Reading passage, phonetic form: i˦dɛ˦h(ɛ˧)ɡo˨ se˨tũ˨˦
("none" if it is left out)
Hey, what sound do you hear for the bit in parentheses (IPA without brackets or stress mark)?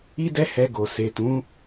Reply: ɛ˧